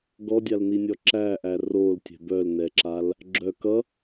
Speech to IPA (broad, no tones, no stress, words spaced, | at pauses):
ɡɔdʲalninʲɔ ǁæʔæ roltʲɛ̤ bœlnɛǁal | ɡ͡ǁœ kʌ